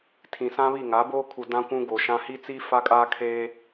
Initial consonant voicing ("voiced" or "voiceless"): voiceless